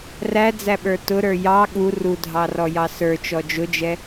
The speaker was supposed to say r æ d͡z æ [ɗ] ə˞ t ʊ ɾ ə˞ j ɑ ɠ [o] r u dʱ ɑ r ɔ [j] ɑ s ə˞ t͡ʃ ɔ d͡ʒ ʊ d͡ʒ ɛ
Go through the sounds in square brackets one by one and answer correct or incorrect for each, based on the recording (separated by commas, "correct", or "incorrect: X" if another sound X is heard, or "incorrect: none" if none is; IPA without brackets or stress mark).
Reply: incorrect: ɓ, incorrect: u, correct